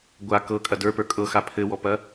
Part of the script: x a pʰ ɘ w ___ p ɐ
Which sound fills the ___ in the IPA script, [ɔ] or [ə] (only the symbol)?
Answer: ɔ